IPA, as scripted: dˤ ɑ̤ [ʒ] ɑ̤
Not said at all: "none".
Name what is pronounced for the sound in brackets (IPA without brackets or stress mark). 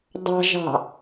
ʒ